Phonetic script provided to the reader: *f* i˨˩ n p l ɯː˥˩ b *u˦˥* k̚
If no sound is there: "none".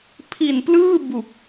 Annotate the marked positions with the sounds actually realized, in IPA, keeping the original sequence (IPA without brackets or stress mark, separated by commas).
pʰ, u˨˩